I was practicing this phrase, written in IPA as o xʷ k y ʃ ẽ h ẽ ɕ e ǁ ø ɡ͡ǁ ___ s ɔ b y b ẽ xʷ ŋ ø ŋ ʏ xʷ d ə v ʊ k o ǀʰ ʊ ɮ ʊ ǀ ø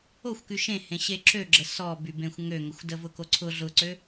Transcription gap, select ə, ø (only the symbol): ə